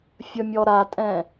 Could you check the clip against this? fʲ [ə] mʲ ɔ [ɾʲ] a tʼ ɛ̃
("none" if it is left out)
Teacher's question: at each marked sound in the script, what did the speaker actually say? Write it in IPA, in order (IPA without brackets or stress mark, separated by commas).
ə, ɾ